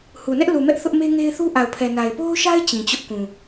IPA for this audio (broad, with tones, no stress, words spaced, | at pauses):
hu˨nɛ˦ʔ lu˨mɛ˦ʔ θʊ˦ʔme˦ŋe˦ɪ̯θu˦ ʔa˨ʊ̯pʰɛ˨na˨ɪ̯ po˦ʊ̯ʃa˦ɪ̯ t͡ɕĩ˨t͡ɕʊ˦ʔkũ˨